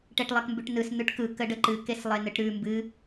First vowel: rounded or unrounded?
unrounded